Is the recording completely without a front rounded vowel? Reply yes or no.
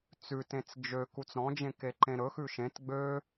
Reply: no